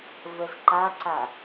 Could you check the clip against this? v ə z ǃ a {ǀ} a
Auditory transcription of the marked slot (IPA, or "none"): ǀ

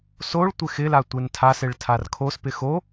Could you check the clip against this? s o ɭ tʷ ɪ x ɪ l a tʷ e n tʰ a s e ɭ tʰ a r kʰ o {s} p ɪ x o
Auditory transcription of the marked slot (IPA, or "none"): s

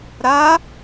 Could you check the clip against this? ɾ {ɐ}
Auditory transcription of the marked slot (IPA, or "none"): a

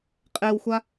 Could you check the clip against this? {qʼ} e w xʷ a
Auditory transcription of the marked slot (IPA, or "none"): qʼ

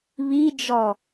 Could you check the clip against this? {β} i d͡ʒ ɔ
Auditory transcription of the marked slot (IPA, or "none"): β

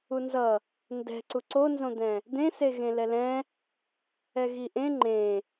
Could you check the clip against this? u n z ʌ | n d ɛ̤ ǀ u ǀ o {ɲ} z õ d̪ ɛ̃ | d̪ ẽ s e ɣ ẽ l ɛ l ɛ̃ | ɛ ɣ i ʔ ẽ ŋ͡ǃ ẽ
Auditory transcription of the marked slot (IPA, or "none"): n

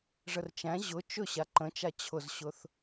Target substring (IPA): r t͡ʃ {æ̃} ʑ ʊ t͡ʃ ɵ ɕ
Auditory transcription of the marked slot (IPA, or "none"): æ̃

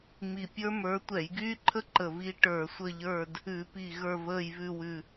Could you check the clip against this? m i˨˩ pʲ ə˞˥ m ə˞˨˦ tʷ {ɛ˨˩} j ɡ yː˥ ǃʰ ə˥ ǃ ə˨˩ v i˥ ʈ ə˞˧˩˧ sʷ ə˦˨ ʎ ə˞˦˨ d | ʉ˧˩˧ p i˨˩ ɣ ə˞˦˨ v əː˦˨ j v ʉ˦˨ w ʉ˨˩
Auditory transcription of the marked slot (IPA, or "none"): ɛ˧˩˧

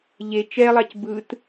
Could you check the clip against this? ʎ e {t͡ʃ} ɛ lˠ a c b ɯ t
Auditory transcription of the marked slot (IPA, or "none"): t͡ʃ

